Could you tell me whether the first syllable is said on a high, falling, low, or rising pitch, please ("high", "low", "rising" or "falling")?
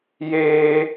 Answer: high